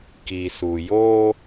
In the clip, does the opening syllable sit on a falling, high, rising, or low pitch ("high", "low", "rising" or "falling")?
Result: low